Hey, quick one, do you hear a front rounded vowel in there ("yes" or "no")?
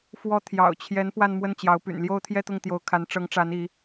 yes